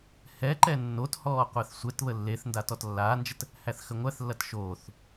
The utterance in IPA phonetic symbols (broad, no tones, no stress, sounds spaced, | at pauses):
h ɛ ǃ ɛ nː o t h ɔː qʷ æ θ sʷ ɛ t β ə lː e θ n d a t ɔ t lː aː n d͡ʒ ə t | h æ θ x ə ŋʷ æ θ lː ɐ t ʃ oː θ